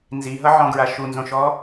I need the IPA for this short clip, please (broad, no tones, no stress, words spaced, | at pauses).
nziɦʌʕɔ̃ɡɹa ʃunzõʃɔ